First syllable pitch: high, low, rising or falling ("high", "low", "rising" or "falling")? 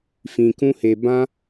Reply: low